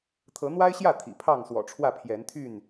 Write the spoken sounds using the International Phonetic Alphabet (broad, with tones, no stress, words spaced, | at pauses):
t̪ʰɤ˨˦n̪wa˦ɪ̯ɕjä˥˨ t̪ʰḭ˨˩pʰɑ˥˨ŋswɔ̰˨˩ʈ͡ʂʰwä˥˨ pʰjɛ˨˦nt̪ʰy˥˨n